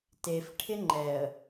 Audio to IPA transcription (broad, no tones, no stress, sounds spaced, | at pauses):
t e f ʈʰ ɪ ŋ͡ǃ ɛ ə̯